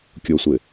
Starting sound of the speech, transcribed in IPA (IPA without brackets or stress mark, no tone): kʲ